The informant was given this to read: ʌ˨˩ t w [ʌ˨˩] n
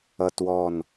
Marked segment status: incorrect: ɔ˨˩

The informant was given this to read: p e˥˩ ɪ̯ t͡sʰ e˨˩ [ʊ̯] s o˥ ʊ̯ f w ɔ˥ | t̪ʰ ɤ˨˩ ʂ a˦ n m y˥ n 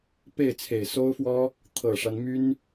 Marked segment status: incorrect: ɪ̯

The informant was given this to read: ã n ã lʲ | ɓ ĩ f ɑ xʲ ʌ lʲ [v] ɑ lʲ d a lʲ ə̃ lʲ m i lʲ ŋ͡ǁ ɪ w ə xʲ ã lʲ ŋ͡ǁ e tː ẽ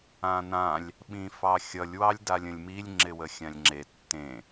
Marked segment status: incorrect: w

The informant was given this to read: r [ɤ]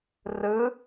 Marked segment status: incorrect: ɯ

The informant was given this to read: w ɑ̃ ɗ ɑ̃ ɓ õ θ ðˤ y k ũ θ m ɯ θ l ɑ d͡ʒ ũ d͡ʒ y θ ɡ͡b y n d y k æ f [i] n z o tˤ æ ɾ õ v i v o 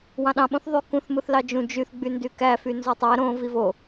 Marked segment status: incorrect: y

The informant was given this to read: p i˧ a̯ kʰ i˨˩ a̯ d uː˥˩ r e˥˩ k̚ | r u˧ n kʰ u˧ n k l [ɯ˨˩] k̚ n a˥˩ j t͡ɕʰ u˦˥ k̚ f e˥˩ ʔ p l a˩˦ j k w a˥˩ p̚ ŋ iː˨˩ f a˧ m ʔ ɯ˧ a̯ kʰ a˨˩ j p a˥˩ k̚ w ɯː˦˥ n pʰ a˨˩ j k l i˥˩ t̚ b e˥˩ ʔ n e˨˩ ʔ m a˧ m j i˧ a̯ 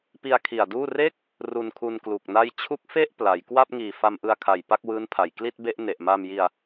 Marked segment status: incorrect: u˨˩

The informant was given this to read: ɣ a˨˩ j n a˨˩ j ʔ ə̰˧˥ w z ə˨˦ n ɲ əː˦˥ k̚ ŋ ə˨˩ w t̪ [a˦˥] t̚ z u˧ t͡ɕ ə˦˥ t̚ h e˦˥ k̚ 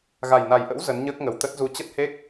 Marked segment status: incorrect: ə˦˥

